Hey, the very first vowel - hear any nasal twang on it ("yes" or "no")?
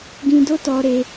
yes